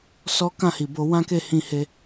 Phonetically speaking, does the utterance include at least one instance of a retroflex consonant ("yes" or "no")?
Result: no